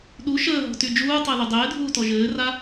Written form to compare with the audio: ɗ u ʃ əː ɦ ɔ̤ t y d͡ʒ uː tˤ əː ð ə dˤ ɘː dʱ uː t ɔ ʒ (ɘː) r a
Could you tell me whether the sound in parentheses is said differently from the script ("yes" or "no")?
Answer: no